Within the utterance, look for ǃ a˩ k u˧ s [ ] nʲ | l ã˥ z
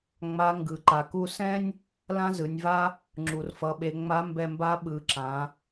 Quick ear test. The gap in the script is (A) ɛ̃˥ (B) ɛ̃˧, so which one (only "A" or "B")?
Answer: A